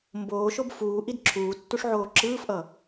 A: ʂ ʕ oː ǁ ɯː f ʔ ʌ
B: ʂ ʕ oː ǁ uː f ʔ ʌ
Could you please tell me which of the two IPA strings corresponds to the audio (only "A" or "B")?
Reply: A